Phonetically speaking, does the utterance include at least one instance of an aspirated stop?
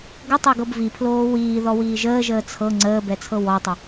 yes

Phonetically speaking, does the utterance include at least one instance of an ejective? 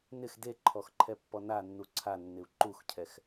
no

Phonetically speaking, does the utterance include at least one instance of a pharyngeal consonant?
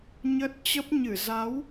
no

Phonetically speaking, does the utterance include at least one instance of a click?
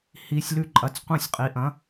yes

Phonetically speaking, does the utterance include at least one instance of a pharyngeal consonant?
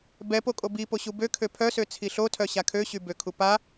no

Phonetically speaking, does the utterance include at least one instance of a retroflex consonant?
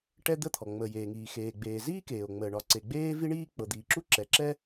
yes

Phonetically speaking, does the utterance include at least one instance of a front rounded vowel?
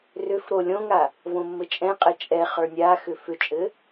yes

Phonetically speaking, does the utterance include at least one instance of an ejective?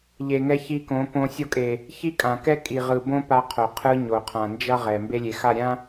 yes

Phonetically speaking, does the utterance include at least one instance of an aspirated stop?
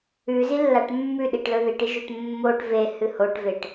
no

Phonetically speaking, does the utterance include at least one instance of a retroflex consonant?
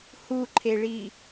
yes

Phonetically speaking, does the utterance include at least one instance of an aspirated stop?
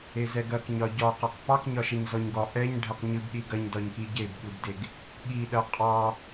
no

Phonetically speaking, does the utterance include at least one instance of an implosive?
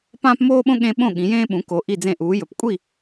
yes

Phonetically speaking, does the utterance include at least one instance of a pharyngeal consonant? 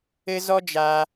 no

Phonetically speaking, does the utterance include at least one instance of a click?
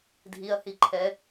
yes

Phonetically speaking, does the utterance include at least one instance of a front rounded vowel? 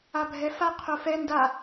no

